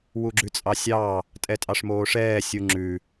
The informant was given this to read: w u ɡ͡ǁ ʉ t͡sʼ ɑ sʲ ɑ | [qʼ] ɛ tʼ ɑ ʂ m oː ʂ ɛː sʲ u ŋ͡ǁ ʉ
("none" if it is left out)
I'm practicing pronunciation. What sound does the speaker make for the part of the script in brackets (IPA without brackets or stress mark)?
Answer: tʼ